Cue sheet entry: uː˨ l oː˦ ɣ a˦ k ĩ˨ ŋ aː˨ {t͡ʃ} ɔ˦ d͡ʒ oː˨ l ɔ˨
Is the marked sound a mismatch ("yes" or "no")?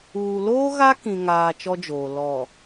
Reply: no